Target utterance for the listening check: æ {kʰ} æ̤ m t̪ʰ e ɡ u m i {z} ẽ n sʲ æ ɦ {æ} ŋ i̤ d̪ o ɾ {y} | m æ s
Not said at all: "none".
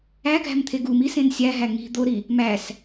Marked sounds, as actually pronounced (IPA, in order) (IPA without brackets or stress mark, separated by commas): ɡʱ, s, æ, i